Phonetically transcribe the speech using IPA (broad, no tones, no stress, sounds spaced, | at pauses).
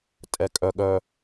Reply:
tʼ ɛ kʼ œ ɠ œ